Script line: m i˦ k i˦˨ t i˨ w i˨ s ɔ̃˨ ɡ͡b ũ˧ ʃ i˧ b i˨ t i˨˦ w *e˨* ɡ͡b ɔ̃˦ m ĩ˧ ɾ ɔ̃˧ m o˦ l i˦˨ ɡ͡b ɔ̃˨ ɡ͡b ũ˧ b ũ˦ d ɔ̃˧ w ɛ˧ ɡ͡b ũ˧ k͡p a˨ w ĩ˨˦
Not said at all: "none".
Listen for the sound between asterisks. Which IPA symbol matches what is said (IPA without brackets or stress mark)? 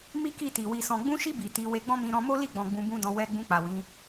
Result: e˧